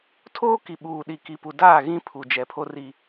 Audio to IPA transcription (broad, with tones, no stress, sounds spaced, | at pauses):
tʰ oː˦ k i˨ ɓ uː˨ ɗ i˨ k i˨ p u˨ d aː˦˨ ɣ ĩ˦ pʰ u˨ d͡ʒ ɛ˨ pʰ o˦ r i˦